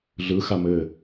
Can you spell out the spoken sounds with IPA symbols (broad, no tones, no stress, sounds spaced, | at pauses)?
ɮ ɯ x a m ɘ